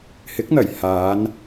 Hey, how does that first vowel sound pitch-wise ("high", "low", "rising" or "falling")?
rising